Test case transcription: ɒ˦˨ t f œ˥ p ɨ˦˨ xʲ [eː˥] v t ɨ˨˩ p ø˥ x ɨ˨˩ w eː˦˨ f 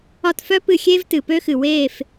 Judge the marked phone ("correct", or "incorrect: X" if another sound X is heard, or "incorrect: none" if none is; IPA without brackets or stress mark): correct